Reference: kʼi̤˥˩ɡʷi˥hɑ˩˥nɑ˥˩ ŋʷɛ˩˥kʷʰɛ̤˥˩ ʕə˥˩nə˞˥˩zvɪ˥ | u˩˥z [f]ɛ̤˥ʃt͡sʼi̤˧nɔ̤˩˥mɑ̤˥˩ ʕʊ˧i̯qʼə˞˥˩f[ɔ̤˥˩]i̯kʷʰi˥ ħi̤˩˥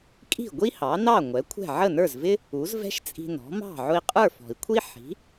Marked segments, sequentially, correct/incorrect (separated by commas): incorrect, incorrect